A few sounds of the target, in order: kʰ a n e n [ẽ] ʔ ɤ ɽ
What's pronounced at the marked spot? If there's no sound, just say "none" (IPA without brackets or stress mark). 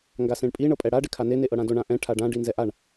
e